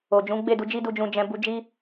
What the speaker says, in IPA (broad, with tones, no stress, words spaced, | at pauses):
o˨d͡ʒũ˨˦ ɡ͡be˦˨du˧d͡ʒi˦du˧ d͡ʒũ˧d͡ʒɛ̃˧ bu˧d͡ʒi˦